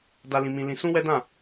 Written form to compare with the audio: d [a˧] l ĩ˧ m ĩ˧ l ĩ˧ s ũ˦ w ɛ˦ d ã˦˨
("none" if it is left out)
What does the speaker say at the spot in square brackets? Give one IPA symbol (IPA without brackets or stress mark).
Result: a˧